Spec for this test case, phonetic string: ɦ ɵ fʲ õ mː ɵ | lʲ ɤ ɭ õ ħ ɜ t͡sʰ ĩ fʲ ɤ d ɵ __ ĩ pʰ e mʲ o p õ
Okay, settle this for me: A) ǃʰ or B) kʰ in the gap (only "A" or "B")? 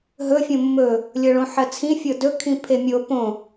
B